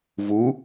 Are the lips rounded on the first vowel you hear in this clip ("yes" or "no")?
yes